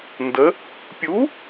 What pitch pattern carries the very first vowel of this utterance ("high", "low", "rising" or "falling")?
rising